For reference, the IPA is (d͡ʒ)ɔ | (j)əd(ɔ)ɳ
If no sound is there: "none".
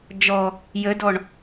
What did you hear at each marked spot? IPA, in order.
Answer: d͡ʒ, j, ɔ

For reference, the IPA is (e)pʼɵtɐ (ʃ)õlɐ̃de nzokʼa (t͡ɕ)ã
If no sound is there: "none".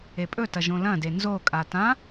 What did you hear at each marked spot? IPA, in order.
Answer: e, ʒ, t

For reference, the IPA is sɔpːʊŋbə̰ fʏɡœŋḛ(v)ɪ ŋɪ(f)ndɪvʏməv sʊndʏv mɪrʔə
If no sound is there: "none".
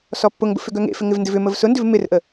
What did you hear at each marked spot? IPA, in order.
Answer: f, v

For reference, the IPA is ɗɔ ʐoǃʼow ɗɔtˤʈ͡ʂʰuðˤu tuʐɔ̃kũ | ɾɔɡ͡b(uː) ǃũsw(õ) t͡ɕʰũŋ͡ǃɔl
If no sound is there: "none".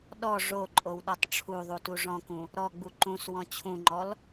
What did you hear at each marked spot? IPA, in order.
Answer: u, ɔ̃

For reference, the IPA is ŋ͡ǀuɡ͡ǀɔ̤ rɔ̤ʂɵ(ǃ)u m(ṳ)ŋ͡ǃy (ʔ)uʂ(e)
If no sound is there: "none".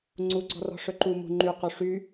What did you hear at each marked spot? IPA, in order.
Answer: ǃ, ṳ, q, y

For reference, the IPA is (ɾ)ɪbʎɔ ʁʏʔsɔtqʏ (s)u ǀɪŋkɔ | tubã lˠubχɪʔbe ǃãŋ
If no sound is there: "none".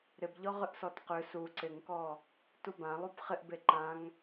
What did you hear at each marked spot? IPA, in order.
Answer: ɾ, s

